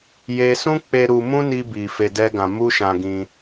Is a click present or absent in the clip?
absent